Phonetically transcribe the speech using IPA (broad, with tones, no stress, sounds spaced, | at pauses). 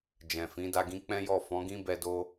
d͡ʒ ɛ̃˨ f ĩ˨˦ d a˧ ɡ ĩ˦ k͡p ɛ̃˦ j ɔ˦˨ f ɔ̃˨˦ ɡ ĩ˦ b ɛ˧ d o˦